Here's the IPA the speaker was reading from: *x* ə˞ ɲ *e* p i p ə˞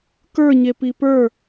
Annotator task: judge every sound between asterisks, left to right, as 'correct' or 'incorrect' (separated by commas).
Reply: incorrect, correct